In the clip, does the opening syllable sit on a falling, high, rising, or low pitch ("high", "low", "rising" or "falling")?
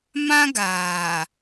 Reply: high